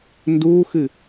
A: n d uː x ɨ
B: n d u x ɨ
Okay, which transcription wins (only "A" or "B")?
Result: A